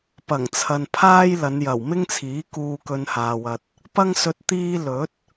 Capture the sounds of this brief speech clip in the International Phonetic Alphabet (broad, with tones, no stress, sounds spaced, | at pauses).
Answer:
p ɐ˨˩ ŋ t͡sʰ ɐ˨ n pʰ aː˥ j l ɐ˨˧ n j ɐ˨˩ w m ɪ˥ ŋ t͡sʰ iː˨˥ k uː˧ k ɵ˧ n h aː˨ w ɐ˨ t̚ | p ɐ˥ ŋ s ɵ˧ t̚ t̪ iː˥ l ɵ˨˥ t̚